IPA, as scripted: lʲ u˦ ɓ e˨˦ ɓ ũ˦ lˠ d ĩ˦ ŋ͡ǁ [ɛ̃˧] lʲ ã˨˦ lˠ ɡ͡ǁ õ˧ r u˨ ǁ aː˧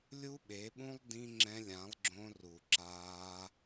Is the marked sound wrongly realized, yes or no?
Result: no